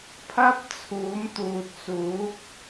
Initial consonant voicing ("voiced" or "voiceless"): voiceless